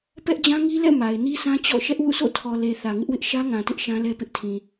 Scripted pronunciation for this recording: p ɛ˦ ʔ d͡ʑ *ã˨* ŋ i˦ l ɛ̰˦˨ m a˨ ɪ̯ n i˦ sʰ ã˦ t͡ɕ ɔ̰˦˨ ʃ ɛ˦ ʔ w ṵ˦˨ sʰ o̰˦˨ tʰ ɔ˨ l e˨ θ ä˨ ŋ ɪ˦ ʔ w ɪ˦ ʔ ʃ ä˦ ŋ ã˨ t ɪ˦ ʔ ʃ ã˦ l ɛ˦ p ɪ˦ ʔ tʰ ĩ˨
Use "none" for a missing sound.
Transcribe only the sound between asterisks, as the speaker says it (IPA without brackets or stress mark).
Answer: ã˦